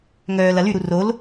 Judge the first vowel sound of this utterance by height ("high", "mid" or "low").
mid